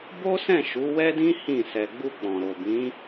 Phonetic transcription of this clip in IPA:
b o˦ s ɛ̃˦˨ ʃ u˨˦ w ɛ˦ d ĩ˦ h ĩ˦˨ s ɛ˧ ɡ͡b u˧ k͡p ɔ̃˨ ɾ o˨ b ĩ˨˦

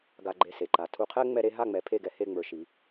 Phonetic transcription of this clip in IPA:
ɡ a˧ ɡ͡ǃ e˧ s e˩ ǃ a˩ tʰ u˧ qʰ ɛ˥ ŋ͡m ɛ˥ ɾ e˥ ɦ a˥˩ ŋ͡m ɛ˩˥ pʰ e˥˩ ɡ ɛ˧ h e˥˩ ŋ͡m ə˞˧ ʃ i˩˥

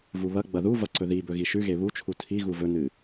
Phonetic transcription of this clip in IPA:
v u β ɐ ɡ͡b ɐ ð u v ɐ ǀ ɵ ð i b ɵ ɣ i ʃ ʉ ɣ e β u t͡ʃʰ u tʰ i ɣ u v ɵ n ɨ

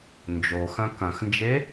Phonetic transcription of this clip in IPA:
n d͡ʒ o x ɐ̃ k ɐ̃ x n d͡ʒ e

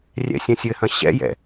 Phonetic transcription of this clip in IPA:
rʲ ɛ̰ sʲ ɐ̃ sʲ ɘ h ɐ̃ ɕ ɛ̰ j ɛ̰

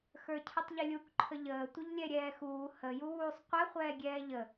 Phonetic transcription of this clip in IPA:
x ə˞ cʰ ə tˤ ʎ ɪ lʲ u k ǃʰ ə ʎ əː tʷ ɪ ʎ lʲ ɛ ɾʲ ɛː x uː h ə j u w uː sˤ qʷ ɛ χʷ ɛː ɡʲ ɛː ʎ ə

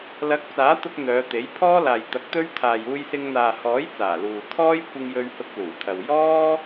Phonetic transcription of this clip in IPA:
l ɐ˨˥ k̚ t͡s aː˨˥ t̪ ʊ˧ k̚ n̪ œː˨˧ t̪ e˨˥ j pʰ ɔː˥ l aː˨ j t̪ ɐ˨˥ k̚ t̪ ɵ˥ ɥ t̪ʰ aː˨ j uː˧ j s ɪ˧ ŋ n̪ aː˨ h ɔː˨˥ j t͡s aː˨˩ l uː˨ t̪ʰ ɔː˥ j kʷ ɪ˧ ŋ j ɵ˧ ɥ h ʊ˧ k̚ l uː˨˩ t̪ʰ ɐ˨ w j ɔː˥

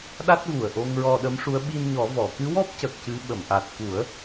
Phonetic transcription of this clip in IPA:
ɗ a˦˥ t̚ v u˨˩ ə̯ ʔ o˧ ŋ ɹ ɔ˧ ɗ ə˧˥ m ʂ u˧˥ ə̯ ɓ i˧ n ɲ ɔ˨˩˦ v ɔ˨˩˨ k ɨ˧˥ w ɔ˦˥ p̚ c ə˨˩ k̚ c ɨ˧˥ ɓ ə˨˩˨ m ʔ a˨˩ t̚ k u˨˩˦ ə̯

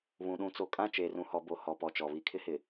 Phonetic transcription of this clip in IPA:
β ũ˨ ɗ ũ˨ t͡s o˨ kʼ ã˦˨ t͡ʃ eː˨ r ũ˨ h ɔ˨ b o˨ h ɔ˨ p ɔ˨ t͡ʃ ɔ˨ β i˦ kʰ ɪ˦ h ɪ˨

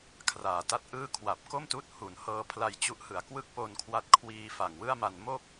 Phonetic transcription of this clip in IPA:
kʰ r aː˨˩ t a˥˩ t̚ ʔ ɯː˥˩ kʰ w a˨˩ p̚ k o˥˩ m t uː˦˥ t̚ h u˩˦ n h ɤː˧ pʰ l a˧ j t͡ɕ u˦˥ ʔ h ɯ˨˩ a̯ k w ɯ˥˩ k̚ p o˧ n kʰ w a˦˥ t̚ kʰ w iː˧ f a˨˩ ŋ w ɯ˥˩ a̯ m a˧ n m o˥˩ k̚

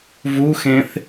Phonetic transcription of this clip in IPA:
v u x ẽ θ

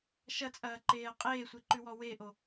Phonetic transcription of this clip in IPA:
ʃ ɐ t͡sʼ ɐː ǃ eː ɐ̯ qʼ eː sʷ e ǃ ʉ w ɔ w e ʔ o

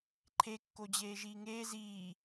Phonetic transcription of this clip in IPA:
ǃʰ e kː o d͡ʑ eː ʒ iː ŋ eː z iː

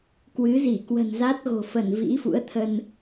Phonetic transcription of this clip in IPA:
k w ɨ˨˦ z i˧˩ k w ə̤˨˩ n z a˦˥ t̚ ɣ o̤˨˩ f ə˧˩ n v ḭ˧˥ f ṵ˧˥ ə̯ t̪ʰ ə˧ n

